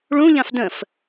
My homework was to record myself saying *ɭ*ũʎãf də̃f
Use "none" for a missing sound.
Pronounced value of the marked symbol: ɭ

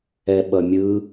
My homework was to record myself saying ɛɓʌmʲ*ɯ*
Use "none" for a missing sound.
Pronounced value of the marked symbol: ɯ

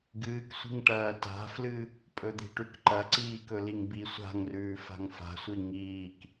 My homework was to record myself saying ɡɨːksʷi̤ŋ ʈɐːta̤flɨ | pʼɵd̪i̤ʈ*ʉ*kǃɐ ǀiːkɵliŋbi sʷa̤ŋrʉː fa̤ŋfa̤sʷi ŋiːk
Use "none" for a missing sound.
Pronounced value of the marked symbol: ʉ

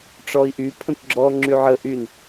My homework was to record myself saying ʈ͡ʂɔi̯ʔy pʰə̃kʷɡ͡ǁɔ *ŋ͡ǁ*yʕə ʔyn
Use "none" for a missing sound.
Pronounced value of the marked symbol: ŋ͡ǁ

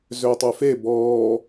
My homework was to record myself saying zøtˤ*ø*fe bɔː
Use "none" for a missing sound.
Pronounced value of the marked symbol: ø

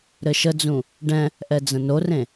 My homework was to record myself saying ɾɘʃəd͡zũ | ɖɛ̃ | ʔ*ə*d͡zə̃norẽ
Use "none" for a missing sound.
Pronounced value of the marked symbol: ɛ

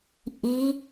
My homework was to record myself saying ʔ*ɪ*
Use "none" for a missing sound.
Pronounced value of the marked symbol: i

